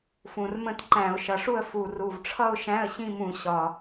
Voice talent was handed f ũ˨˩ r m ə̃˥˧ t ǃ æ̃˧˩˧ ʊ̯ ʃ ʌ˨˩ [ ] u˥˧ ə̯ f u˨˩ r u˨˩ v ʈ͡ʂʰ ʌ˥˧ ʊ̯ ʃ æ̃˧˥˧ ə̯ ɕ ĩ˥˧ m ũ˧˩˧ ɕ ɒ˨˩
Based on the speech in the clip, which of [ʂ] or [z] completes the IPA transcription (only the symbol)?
ʂ